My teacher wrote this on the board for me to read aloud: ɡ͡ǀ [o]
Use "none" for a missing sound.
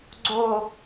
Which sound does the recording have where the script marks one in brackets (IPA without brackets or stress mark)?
o